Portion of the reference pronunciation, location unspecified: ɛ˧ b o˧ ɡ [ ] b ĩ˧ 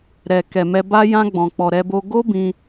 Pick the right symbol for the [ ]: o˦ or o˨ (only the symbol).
o˦